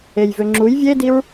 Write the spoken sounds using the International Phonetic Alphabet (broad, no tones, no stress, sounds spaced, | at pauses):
e j v ø ŋ͡ǁ u j vʲ e d i ɹ